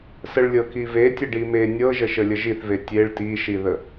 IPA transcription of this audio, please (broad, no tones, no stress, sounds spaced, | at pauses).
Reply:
s ə ɭ lʲ ɤ k i v e tʲ ə ɖ i m e nʲ ɤ ʒ ə ʃ ə lʲ ə ʒ i θ v e tʲ e ɭ t i ʃ i ð ə